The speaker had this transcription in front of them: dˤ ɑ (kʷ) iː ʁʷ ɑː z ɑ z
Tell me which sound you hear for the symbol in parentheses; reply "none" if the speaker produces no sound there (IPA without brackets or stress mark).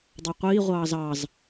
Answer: qʷ